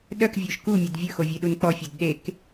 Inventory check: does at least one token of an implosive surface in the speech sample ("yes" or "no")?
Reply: yes